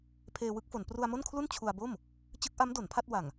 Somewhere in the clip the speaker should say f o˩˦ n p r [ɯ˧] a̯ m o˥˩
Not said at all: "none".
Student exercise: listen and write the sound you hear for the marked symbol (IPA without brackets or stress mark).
u˧